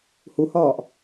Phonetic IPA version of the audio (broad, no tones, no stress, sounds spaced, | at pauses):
h u h ɒː ʔ